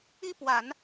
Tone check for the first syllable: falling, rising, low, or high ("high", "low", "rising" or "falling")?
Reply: high